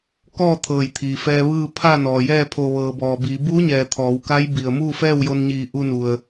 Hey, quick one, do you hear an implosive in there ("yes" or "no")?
no